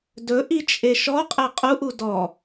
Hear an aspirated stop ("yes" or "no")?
no